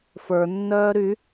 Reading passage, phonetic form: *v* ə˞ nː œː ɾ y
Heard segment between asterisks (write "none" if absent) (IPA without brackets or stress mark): f